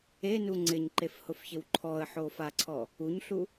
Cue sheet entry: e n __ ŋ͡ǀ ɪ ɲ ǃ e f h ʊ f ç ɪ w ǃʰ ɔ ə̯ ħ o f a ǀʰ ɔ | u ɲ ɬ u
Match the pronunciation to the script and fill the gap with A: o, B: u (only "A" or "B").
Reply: B